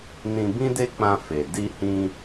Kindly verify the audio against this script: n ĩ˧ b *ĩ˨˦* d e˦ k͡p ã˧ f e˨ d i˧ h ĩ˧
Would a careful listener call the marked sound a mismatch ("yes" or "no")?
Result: yes